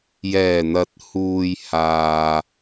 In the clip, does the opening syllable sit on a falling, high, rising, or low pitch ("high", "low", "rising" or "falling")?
low